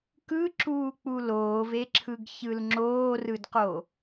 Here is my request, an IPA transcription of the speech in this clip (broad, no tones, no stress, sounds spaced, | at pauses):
k ɯ ǁ uː k͡p u l oː v e ǁʰ ɯ ɡ ç ɯ l ŋ͡ǁ oː r ɯ d q o